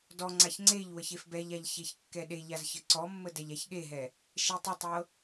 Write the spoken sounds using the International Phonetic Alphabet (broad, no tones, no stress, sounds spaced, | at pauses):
d ɔ ŋ͡ǀ a ç ŋ͡ǀ e ʎ w ə ç e f b ɛ ʎ a ʎ ç e ç kː ɛ ɗ e ʎ a z ç ə ǀ ɔ mː ə d ɛ ʎ a ç ɠ e ɦ ɛ | ʃ e tˤ ə tˤ ɤ